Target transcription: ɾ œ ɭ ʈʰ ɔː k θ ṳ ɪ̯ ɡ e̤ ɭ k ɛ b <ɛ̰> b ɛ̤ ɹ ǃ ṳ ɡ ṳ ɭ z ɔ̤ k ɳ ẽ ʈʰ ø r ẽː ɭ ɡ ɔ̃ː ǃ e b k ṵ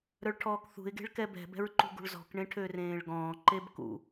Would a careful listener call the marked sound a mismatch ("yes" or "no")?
yes